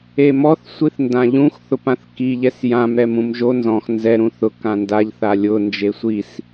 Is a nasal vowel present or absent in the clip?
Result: present